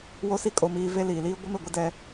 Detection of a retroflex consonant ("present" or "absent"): absent